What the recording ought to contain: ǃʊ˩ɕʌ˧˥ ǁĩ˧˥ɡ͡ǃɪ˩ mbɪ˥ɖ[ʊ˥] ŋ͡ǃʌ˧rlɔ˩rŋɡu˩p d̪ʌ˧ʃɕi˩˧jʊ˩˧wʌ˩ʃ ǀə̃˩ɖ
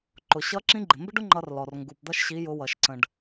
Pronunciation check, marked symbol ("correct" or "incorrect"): correct